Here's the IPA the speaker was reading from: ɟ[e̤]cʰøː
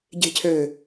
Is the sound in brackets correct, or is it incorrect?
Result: correct